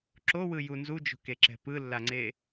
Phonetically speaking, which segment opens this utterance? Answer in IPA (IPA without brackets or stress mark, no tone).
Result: ǁ